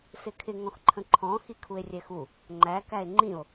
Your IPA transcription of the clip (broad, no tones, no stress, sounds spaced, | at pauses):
s ɪ kʰ ɪ ŋ ɔ̃ x ǃʰ ə̃ ǃʰ ɔ̃ x i kʰ u e̯ rʲ ɛ x u | ŋ͡ǃ æ k æ e̯ ŋ͡ǃ ĩ o̯